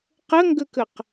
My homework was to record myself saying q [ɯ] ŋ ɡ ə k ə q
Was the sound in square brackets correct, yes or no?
no